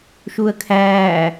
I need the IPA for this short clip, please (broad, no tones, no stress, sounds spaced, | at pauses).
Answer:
ʃ u ə̯ kʰ æː